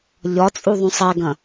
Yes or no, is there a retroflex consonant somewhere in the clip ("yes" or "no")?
no